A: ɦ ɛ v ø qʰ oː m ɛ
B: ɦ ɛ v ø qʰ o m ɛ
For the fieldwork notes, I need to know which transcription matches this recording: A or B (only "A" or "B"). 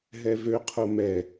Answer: B